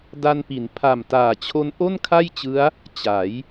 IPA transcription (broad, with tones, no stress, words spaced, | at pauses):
da˧npi˩˦n pʰa˨˩mtaː˨˩t͡ɕʰo˦˥n ʔo˥˩nkʰa˥˩jt͡ɕɯ˦˥a̯ | t͡ɕa˩˦j